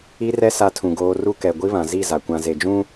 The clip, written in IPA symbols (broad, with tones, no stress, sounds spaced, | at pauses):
i˦ r ɛ˦ s a˦ tʰ ũ˨ ɡ oː˦ r u˦ k ɛ˨ ɡʷ i˦ β ã˨ z i˦˨ z a˨ kʷ ã˨ z e˨ d͡ʒ ũ˦